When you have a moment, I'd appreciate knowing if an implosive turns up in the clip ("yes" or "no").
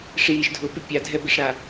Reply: no